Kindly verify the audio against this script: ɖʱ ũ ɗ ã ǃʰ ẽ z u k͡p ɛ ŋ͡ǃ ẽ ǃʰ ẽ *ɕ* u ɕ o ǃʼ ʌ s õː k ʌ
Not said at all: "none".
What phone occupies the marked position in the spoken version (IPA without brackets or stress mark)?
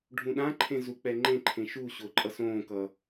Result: ʃ